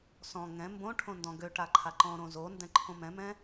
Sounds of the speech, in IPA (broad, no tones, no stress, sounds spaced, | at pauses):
s ɔ̃ ŋ ɛ̃ m b õ ʈʰ õ n d ɔ̃ ɡ ø ʈ a ǃʰ a ǃ ɔ̃ ɾ õ z o n d ɛ̃ ǃʰ õ m ɛ̃ m ɛ̃